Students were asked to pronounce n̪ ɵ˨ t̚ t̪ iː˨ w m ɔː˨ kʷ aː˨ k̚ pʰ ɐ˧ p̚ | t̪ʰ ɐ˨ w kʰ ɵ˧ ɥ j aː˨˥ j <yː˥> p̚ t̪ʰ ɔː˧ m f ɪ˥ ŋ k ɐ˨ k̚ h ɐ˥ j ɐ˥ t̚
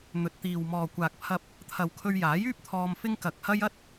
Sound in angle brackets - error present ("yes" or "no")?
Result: no